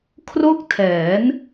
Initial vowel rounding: rounded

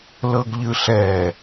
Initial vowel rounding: unrounded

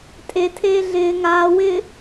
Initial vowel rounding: unrounded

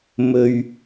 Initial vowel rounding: rounded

